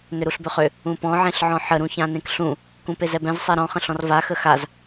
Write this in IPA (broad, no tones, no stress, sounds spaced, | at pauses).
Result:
n ʏ ɾ u ɬ b ʏ χ ʏ | ũ p ɔ̃ ʕ ẽ ɬ ʕ ɔ̃ ħ ə ɾ ũ ç ã n ẽ k ɬ ũ | k ũ p e z ɛ b ɛ̃ z sˤ ɛ ɾ ɔ̃ χ ə̃ ɬ ɔ̃ r v a x ə x a z